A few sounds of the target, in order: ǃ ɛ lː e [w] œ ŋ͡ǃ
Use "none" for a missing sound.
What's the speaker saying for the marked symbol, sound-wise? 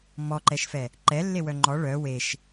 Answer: w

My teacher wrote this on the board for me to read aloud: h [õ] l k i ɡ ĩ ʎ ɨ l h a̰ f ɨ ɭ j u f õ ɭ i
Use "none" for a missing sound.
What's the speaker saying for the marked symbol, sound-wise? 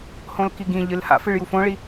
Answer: õ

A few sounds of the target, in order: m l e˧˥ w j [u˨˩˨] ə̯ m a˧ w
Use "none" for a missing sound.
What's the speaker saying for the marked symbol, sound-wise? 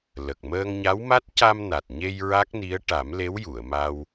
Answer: u˨˩˨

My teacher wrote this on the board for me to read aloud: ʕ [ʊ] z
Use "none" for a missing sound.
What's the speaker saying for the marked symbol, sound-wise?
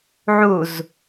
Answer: u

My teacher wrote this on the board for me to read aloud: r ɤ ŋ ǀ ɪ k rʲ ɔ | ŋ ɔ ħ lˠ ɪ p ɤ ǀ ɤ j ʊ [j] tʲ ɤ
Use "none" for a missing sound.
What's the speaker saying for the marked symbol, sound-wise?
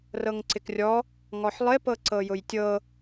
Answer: j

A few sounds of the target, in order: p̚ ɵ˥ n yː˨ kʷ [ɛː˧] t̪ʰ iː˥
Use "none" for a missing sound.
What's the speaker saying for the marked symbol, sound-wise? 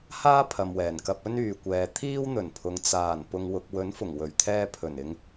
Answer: ɛː˨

